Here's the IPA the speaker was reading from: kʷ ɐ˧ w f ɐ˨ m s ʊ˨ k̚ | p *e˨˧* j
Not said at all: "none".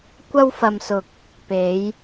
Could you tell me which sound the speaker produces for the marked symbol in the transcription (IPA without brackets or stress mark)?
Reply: e˨˧